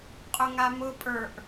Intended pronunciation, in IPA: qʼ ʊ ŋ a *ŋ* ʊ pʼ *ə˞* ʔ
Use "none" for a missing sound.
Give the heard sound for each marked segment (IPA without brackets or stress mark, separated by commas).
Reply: m, ə˞